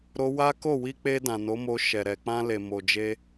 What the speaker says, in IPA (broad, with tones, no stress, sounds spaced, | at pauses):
ɾ o˦ w a˦ k o˦˨ w i˧ k͡p e˧ d ã˨ n o˨˦ m o˧ ʃ ɛ˨ ɾ ɛ˨ k͡p ã˧ l e˨ m o˨ d͡ʒ e˧